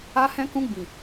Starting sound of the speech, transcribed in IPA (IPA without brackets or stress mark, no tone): a